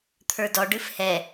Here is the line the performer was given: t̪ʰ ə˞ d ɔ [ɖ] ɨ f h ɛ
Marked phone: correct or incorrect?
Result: correct